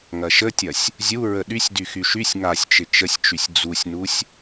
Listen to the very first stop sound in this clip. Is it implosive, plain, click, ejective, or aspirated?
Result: plain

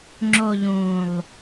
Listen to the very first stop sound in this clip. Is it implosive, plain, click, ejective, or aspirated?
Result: click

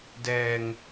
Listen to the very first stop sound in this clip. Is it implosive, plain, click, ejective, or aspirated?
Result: plain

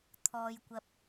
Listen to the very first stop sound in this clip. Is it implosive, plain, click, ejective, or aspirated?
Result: aspirated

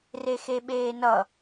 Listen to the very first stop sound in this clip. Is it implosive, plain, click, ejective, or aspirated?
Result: implosive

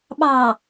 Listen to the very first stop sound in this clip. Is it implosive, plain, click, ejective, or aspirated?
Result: implosive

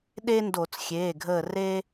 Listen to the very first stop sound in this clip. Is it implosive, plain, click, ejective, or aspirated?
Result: implosive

